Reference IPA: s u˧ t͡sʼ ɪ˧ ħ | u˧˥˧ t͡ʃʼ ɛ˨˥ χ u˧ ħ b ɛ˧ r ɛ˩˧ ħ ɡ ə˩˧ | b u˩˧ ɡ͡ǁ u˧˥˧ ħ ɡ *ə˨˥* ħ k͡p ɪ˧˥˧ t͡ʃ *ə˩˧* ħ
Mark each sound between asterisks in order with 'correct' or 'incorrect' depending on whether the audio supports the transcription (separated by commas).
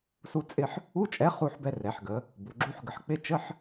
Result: correct, incorrect